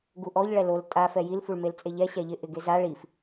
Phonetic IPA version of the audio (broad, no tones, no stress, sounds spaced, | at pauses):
ɡ u ʔ ɔ ʎ ɭ ɛ l o l tʼ a f ɛ j i l f u ɭ m e l t͡sʼ e ʎ ɛ ɕ ɛ ʎ ɪ ʔ ɪ ɡ e z a ɭ i f